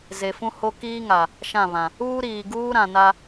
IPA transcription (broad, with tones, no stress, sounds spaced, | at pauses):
z e˨ f ũ˦ h o˦ k iː˦ ŋ a˨ | ʃ ã˦˨ β ã˨ | uː˦ ɾ iː˨ ɡ uː˦ ɾ ã˨ n a˦